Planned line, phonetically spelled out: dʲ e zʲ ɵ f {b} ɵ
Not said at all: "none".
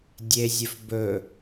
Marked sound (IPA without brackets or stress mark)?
b